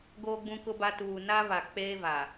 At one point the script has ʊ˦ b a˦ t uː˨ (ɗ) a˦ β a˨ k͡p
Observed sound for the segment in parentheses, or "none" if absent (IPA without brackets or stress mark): n